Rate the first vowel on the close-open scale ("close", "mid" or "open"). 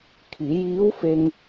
close